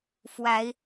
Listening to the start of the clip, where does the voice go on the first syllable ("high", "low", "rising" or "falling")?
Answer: rising